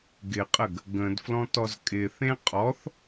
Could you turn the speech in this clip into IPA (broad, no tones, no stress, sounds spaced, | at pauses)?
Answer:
ɡ ɪ qʼ ə ɡ | ɡ ə̃ d f l ɔ̃ t ɔ z kʼ ɪ θ ẽ qʼ ɔ θ